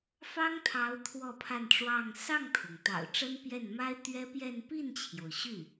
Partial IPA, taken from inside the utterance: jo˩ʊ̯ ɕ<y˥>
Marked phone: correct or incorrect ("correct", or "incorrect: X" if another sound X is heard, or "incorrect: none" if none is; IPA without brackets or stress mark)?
incorrect: y˥˩